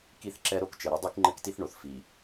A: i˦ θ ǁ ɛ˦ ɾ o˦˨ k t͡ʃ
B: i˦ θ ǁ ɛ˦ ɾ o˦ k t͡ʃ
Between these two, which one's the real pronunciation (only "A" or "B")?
B